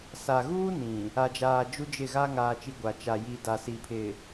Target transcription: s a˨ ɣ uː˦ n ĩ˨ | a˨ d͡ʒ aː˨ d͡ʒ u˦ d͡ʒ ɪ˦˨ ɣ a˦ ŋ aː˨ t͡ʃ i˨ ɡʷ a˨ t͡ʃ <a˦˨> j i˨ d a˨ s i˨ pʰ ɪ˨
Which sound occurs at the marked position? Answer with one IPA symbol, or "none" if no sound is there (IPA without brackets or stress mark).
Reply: a˨